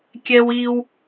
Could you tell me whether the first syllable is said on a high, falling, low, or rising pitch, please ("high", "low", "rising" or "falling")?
high